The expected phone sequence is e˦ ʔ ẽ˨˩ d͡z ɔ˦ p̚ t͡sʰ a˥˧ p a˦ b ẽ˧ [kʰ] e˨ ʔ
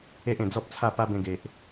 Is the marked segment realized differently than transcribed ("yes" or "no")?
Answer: yes